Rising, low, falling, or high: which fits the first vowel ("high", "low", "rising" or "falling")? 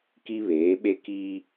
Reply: high